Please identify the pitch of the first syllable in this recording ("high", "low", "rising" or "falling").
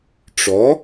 rising